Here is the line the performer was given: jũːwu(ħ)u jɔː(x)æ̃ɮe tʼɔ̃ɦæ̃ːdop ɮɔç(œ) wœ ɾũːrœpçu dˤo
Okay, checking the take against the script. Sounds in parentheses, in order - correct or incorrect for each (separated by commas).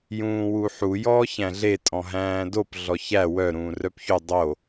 correct, incorrect, incorrect